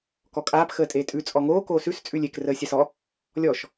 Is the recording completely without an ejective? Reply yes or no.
no